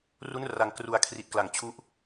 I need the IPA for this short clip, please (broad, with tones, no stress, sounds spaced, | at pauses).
r u˦˥ n r a˧ ŋ k r u˧ a̯ kʰ r i˨˩ t̚ k l a˨˩ ŋ t͡ɕʰ u˦˥ ʔ